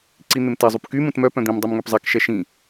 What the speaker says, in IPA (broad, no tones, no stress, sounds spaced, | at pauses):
ǀ i n̪ ɪ m t ɛ zˤ u p k y m ũ t m œ p œ̃ d̪ ĩ m dˤ u m ŋ ø p zˤ ɛ k ʃ ɛ ʃ ĩ